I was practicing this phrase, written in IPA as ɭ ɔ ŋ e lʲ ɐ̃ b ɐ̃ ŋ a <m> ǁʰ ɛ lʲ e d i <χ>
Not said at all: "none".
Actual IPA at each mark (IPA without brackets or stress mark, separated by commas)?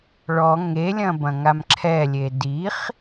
m, χ